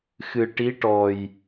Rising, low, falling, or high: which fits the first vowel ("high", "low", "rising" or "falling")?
low